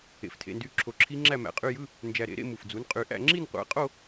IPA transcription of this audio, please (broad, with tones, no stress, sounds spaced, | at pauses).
ḛ˧˩ f tʰ ḛ˧˥˧ n d y˦˥ ǁʰ o˧ ǁʰ i˦˥ ŋ͡ǁ æ˥˧ m æ̰˧ qʼ y˧˥˧ j ɯ˧˥˧ | n d͡ʒ æ˧ ɾ ḛ˨˥ ɾ ḛ˥˧ m u˧˩ f d͡z u˨˥ n qʼ y˧ ʔ æ̰˥˧ ŋ͡ǁ i˥˧ n qʷ æ̰˨˥ qʼ o˥˧